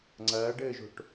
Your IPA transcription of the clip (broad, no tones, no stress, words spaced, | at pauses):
ŋ͡ǀɐːɖɘːʒo̤ʈ